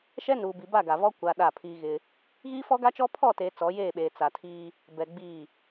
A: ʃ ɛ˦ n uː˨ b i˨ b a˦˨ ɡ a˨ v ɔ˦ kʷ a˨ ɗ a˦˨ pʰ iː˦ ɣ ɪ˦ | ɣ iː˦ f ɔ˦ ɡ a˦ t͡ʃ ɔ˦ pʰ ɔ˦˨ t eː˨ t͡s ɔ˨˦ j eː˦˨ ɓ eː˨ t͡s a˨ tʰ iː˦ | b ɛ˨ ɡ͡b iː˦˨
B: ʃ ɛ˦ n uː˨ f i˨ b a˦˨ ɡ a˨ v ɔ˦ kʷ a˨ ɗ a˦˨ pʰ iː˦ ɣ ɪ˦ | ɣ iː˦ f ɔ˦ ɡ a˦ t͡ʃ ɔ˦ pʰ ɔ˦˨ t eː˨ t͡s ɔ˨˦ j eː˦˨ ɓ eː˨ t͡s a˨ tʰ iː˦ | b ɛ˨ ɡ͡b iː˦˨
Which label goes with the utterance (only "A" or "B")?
A